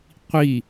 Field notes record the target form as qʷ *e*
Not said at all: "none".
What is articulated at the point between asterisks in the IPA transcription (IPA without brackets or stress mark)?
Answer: i